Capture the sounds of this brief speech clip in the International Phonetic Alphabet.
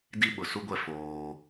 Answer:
d i˦ ɓ ʊ˨ s u˦ ɡʷ ɛ˦˨ f oː˦

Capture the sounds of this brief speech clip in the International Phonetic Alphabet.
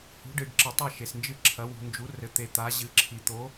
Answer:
h ṳ˧˥ ɖ ɨ˧ ɖ ǁ ɨ˧ tˤ ɐ˥˧ ʃ e˧ s n d͡ʒ ɨ˥˧ ǁʰ ɐ˧˥ w ṳ˧ n d͡ʒ u˧˥ r ɘ˧ t̪ e˧ t̪ a˧˥ ʑ ɨ˧˥ ǁʰ i˧ t̪ o˧˥

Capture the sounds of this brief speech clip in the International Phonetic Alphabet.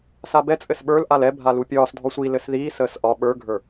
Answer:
s a b ɛ t͡sʼ ɘ s ɓ ə˞ l ʔ a l ɛ bʱ a l u pʲ ɒː s dʱ ɔ sʷ i l ɘ s ð iː s əː s ʔ ɒ ɓ ə˞ ɡʱ ə˞

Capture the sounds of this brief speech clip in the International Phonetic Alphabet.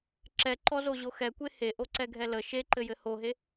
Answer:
ǁ ɛ ǃ ɔ z o ʑ o x ɛ kʷ e h e ʔ o ǀ ɛ ɡʱ ɛ l ə ʃ e ǃ ɘ j ɘ h o ɦ e

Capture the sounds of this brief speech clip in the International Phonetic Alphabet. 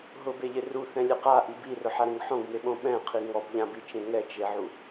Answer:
ɦ ʊ b e ʎ ɪ r u θ ɛ̃ lʲ e q a ʔ i b i r ʊ ħ a ɾ ẽ ŋ ħ õ ɡ m e ɓ õ ɓ ɛ̃ qʰ i ŋ ɔ b ʎ ã b i t͡ʃ ẽ ŋ ɛ t͡ʃ e ʕ u

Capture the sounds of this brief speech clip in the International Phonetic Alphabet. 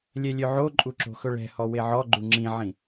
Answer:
lʲ ɛ lʲ ø ʕ o ǃʼ u ǁ o̤ x ɵ ɭ ɛ̤ h ɔ w e ʕ ɔ ɡ͡ǃ u ŋ͡ǁ ĩ ʕ ĩ

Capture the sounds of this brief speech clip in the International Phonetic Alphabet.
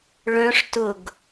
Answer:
ɭ œ̃ ʂ t ʊ ɡ

